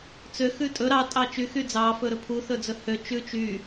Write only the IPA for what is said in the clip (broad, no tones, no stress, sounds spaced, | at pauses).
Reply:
t͡s ø x ʉ tʼ ɵ ɾ ɑ tʼ ɑ t͡ʃ y x y d͡z ɑ f ɵ ɾ ɵ pʰ u θ ɵ d͡z ɵ h ø t͡ʃ ʉ t͡ʃ y